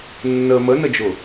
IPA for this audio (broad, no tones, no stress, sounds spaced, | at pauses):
nː ə m ə n ə d͡ʒ ʊ